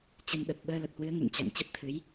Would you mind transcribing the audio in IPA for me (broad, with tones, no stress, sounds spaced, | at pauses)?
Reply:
t͡ɕ ə˧ n ɗ ə˨˩ t̚ ɓ əː˧ l ə˨˩ t̚ h w ɨ˨˦ ə̯ ŋ ɨ̰˧˨ n t͡ɕ a̰˧˨ ŋ t͡ɕ ə˦˥ p̚ t̪ʰ ɨ˨˦ j